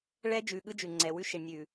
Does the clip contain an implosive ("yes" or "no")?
yes